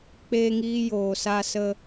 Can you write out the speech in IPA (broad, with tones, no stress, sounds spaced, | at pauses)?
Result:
k͡p eː˦ ŋ iː˦ j oː˨ s a˦ s ə˦